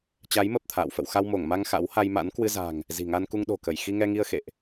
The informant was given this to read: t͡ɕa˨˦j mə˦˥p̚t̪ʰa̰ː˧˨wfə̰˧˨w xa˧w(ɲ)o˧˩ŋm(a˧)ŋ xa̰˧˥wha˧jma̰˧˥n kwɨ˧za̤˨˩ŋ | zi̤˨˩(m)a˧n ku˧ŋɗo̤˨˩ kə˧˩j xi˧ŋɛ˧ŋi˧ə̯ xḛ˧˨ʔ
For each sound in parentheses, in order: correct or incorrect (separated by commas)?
incorrect, correct, incorrect